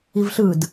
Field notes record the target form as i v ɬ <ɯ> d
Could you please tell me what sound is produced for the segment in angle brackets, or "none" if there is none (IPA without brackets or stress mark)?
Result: ɯ